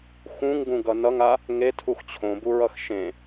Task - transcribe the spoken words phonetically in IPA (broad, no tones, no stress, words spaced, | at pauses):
xũŋɡũɡʌ nʌŋa | ŋetʰux t͡ɕʰõbuɹʌx ʃẽ